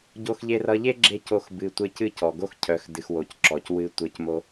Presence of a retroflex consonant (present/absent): absent